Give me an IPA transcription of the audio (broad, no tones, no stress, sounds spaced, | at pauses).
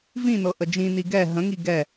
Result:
v ĩ n ɤ ʔ ə d͡ʒ ĩ n i ɡ ɛ ɦ ə̃ ŋ i ɡ ɛ